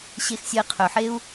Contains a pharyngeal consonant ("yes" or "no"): yes